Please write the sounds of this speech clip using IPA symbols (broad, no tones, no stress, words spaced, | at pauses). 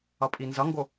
ʌpʼinzʌŋɡo